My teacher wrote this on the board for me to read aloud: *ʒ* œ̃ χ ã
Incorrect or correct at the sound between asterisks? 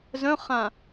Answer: incorrect: z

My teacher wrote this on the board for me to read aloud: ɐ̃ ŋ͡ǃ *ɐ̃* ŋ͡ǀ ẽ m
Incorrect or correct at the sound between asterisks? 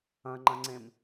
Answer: correct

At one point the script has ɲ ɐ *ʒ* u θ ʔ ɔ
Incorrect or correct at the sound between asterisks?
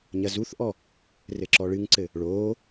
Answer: incorrect: z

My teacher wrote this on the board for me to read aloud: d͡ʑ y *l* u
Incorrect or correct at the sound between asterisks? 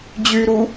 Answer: incorrect: ɾ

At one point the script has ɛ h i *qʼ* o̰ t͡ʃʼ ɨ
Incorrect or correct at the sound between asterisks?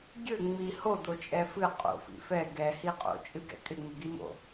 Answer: correct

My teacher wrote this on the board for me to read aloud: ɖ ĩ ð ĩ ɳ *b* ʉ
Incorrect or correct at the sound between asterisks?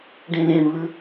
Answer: incorrect: β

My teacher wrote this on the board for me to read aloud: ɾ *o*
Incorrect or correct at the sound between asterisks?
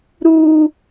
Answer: incorrect: u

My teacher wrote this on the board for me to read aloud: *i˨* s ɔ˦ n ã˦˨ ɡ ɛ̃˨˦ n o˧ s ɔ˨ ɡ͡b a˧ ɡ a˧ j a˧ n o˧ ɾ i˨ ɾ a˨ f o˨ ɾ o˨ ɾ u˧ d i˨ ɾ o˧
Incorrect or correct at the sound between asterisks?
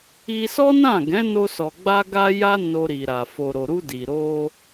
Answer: incorrect: i˧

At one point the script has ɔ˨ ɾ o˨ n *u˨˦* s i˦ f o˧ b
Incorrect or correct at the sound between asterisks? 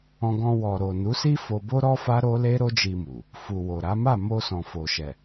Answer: correct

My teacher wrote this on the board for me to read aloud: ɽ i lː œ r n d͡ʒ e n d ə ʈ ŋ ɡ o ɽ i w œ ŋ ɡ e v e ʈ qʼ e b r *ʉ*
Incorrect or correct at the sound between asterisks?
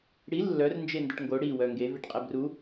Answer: incorrect: u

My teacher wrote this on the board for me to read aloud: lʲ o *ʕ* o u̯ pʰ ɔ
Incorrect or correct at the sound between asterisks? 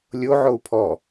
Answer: correct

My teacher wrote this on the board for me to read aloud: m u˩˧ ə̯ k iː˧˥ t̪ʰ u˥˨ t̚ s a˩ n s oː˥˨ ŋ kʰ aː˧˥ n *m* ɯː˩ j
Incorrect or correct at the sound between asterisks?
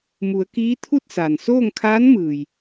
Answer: correct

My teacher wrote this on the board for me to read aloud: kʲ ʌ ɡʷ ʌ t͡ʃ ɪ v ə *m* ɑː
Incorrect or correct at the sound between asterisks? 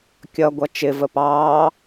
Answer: incorrect: p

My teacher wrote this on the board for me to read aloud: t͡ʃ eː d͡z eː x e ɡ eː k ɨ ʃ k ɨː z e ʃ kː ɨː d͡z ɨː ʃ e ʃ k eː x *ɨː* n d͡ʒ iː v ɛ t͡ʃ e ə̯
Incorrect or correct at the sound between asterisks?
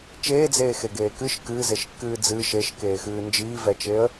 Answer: correct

